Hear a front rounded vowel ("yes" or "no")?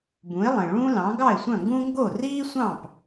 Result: yes